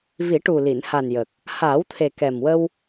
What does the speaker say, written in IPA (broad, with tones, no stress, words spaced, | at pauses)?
vi˨˩˦ʈu˨˩li˨˩˨n ha˨˩njə˨˩k̚ | haː˨˩˦wt̪ʰe˨˩kɛ˨˩mwə˧w